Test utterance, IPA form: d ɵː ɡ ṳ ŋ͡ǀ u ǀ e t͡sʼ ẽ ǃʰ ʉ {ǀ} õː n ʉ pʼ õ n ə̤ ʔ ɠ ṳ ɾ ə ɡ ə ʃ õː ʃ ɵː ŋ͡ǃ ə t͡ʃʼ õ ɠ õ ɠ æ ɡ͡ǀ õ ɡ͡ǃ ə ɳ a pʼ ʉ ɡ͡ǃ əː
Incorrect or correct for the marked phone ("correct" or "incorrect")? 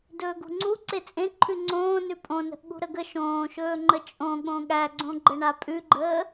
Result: incorrect